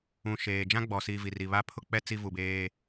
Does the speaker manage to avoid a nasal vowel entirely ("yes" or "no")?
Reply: no